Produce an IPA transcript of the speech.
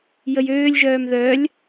j ə j øː lʲ ʒ œː m ð œ lʲ

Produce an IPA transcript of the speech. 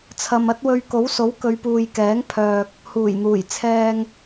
t͡sʰ ɐ˨ m ɐ˥ t̚ w ɵ˧ ɥ k o˨˥ w s o˨˥ w k ɵ˨˧ ɥ p uː˨ j k ɛː˨˥ ŋ pʰ œː˨ k̚ | h uː˨˩ j n̪ uː˨˩ j t͡sʰ ɛː˧ ŋ

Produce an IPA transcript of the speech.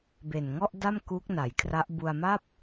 b e˨˩ n ŋ ɔ˥˩ ʔ d a˥˩ m k uː˦˥ k̚ n a˩˦ j kʰ r a˦˥ ʔ b u˧ a̯ m a˥˩ p̚

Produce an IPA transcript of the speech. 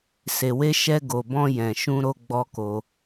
s e˨ w e˧ ʃ ɛ˧ ɡ o˨ b ɔ̃˧ j ɛ̃˨ ʃ ũ˧ ɾ o˦ ɡ͡b ɔ˦ k o˧

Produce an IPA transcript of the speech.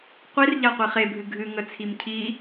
qʷ i r ʎ a qʷ i χ e bʱ ɨ ɡʱ ɨ ŋ ə t͡sʰ i m cʰ i

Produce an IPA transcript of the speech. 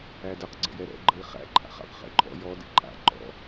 æ d ə q ɡ͡ǀ ə̰ j ɛ ɾ ɛ̰ ɡ͡ǃ ə i̯ χ æ̰ ǃʼ a̰ χ a̰ q χ ɛ̰ ǃʼ ɔ̰ j ɔ d ɛ̰ ǃʼ a̰ ǃ ɔ̰

